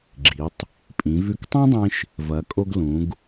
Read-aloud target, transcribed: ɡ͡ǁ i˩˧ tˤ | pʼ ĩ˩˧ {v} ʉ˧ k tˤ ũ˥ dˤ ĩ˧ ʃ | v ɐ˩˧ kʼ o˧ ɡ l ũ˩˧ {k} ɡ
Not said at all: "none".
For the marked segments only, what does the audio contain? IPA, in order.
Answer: v, none

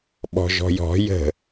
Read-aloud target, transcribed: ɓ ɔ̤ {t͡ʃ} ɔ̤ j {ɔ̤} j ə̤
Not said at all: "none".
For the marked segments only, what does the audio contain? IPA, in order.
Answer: ʒ, ɔ̤

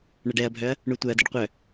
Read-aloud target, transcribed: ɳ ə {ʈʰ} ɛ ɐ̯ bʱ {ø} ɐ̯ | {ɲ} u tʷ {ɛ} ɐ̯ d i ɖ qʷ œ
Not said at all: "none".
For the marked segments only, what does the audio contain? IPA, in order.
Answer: ɖ, œ, ɳ, œ

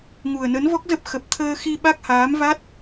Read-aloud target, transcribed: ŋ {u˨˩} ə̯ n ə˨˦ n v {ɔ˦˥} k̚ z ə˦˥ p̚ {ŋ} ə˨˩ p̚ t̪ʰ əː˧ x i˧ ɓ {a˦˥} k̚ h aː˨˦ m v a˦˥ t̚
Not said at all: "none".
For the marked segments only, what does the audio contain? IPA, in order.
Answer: u˨˩, ɔ˦˥, x, a˦˥

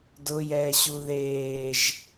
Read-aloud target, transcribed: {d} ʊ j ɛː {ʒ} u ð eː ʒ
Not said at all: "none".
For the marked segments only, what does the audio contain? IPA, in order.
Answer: d, ɕ

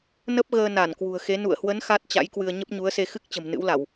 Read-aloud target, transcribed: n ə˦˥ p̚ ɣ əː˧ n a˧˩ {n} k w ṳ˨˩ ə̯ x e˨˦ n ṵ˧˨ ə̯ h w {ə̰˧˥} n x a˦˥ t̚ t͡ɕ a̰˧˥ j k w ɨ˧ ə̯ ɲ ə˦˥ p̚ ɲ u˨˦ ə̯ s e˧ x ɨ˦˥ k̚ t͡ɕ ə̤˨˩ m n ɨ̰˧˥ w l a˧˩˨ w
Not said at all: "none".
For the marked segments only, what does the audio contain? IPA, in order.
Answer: n, ə˨˦

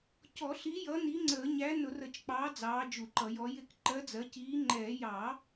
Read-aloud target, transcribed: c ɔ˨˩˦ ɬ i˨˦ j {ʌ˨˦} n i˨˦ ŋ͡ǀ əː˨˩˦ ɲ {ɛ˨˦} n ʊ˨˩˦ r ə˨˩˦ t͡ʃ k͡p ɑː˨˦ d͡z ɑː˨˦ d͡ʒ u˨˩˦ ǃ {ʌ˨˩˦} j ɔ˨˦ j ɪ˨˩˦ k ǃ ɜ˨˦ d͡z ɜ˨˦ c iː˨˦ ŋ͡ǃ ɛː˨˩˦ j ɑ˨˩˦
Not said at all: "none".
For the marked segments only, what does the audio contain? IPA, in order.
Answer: ʌ˨˦, æ˨˦, ʌ˨˩˦

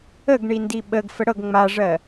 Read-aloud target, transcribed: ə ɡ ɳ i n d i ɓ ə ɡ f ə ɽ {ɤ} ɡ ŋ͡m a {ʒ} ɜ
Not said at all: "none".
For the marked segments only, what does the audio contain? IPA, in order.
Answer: ɤ, ʐ

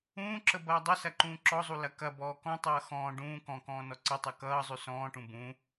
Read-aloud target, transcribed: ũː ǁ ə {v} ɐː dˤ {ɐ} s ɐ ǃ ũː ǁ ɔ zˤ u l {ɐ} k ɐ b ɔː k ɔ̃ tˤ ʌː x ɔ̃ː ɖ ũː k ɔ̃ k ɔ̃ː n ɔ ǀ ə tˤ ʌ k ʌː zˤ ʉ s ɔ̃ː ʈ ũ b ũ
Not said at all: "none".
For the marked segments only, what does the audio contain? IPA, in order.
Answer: b, ə, ɐ

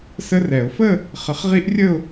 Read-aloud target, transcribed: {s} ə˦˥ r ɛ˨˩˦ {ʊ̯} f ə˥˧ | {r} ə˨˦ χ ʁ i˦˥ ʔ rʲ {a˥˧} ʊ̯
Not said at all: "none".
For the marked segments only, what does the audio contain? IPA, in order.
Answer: s, ʊ̯, χ, ə˥˧

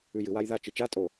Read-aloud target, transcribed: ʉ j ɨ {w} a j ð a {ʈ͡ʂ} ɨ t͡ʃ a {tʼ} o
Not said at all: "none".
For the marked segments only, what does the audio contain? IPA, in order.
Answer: w, t͡ʃ, tʼ

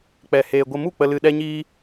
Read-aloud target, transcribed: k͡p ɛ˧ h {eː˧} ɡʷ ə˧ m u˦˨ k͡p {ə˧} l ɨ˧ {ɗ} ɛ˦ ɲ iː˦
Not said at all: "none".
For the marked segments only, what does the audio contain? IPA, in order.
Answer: eː˧, ə˧, ɗ

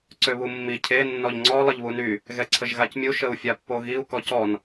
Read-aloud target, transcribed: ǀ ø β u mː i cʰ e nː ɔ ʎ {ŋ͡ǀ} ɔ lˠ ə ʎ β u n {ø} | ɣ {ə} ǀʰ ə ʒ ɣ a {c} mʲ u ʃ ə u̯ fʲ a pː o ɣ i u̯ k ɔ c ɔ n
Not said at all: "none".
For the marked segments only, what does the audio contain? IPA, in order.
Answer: ŋ͡ǀ, y, ɛ, c

